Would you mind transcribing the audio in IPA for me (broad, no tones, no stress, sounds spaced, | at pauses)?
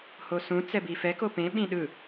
h o s ũ t͡s ɛ b i f ɛ k o p ẽ ɓ ĩ ɗ ɯ